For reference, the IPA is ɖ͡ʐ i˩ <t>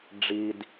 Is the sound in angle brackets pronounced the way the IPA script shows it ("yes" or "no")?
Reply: no